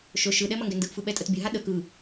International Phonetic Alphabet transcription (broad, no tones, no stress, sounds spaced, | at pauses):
ʃ ɵ ʃ ɯ ɗ ɛ m ɐ ŋ ɡ ɛ n d ɯ ʔ f ɯ ɓ ɛ tʼ ə t bʲ ɵ ɦ a ɗ ə k ɯ